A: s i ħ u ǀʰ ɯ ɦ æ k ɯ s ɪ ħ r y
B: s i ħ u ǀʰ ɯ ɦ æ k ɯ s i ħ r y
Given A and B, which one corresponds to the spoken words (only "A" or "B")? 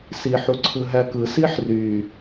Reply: B